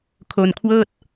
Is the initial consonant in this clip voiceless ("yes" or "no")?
yes